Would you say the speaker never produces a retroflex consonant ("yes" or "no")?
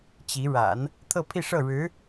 no